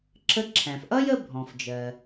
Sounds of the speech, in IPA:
ǁ ə˧˥ ǁʰ æ̃˩ f ʔ ʌ˥ j ə˥ bʱ ɔ̃˩ f d͡ʒ ɜ˩

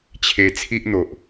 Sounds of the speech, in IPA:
t͡ɕʰ e˧ t͡sʰ i˦ ʔ n̪ o˨ ʔ

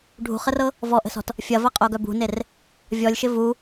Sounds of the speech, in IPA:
ɖʱ ṳ χ ə r ɤ | v ɔ ʔ ə̤ s ɔ̤ t | fʲ ɐ v ɐ qʼ o ɡ œ b ṳ n e r | vʲ ɔ lʲ ʃ ɪ v u

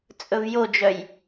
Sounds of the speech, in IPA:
t͡sʼ ɵ v j o d͡ʒ œ j

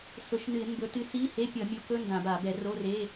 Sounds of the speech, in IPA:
s ʊ˧˩˧ ʃ n ɨ˧˩˧ ɪ̯ m b ɵ˨˦ t ɨ˨˦ s i˧˥˧ h e˧˥˧ pʲ ʌ˧˩˧ mʲ o˨˦ k ɵ˧˥˧ n d ã˧˩˧ b a˧˩˧ b ɛ˧˩˧ r o˧˥˧ r e˧˥˧

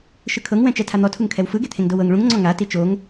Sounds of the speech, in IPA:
ʃ ɯ kʰ ɤ ŋ w ɛ̃ t͡ʃ ɛ tʰ a n̪ ɔ tʰ u ŋ kʰ ɛ w f ɯ ɡ e t̪ʰ ẽ ŋ d o w ɤ ŋ ɭ ũ ŋ ŋ͡ǀ ɔ̃ ŋ a t i t͡ʃ o ŋ

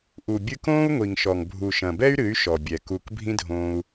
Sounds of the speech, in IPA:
ʔ u˨ bʲ ɨ˧ k õː˦ u̯ ŋʷ i˨ ŋ ʃ ɔ˨ ŋ bʱ u˨ ʃ ɐ̃˨ b ɛ˦ y̯ ɾ ɨ˨˦ y̯ ʃ ɔ˨ bʲ ɛ˨ k u˧ k bʱ ĩ˦ dʱ õː˧ u̯

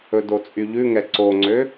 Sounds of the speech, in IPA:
ɵ d o t͡sʼ y ʎ ʉ ŋ ɛ ǀ o ŋ͡ǀ ø

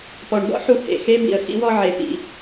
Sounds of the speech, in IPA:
p ɔ˨˩ ɳ b ɔ̰˥ ħ u˧ h ḛ˨˩ x e˧˥ b ḭ˨˩ ə̯ x ḭ˥ w ɔ˥ ʕ e˨˩ p ḭ˨˩

